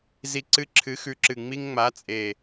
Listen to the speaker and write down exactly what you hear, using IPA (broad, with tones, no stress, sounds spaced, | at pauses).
z i˧ ǀ ɨ˧˥˧ ǁʰ ɨ˨˥ x ʉ˨˥ ǁ ɨ˨˩ ŋ͡m i˧ ŋ ŋ͡m a˨˥ t͡sʼ e˨˩